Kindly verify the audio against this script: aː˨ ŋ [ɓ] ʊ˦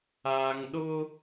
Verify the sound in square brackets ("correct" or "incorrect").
incorrect